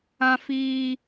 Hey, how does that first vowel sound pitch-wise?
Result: high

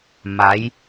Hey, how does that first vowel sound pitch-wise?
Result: rising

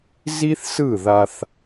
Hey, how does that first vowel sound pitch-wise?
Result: high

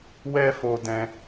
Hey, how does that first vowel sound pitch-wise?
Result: high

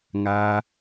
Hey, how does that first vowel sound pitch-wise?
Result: high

